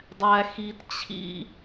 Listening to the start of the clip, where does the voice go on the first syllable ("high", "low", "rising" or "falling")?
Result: low